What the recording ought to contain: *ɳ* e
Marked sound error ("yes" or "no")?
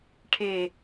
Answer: yes